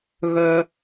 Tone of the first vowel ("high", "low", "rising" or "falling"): low